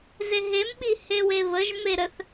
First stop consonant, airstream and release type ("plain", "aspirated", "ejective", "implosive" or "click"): implosive